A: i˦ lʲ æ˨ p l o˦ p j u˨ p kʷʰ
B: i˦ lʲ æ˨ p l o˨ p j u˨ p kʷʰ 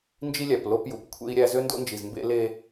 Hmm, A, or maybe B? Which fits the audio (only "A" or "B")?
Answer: A